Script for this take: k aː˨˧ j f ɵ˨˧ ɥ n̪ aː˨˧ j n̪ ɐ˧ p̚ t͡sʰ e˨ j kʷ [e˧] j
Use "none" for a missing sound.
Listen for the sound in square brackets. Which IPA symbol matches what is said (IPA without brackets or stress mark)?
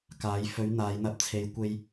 e˧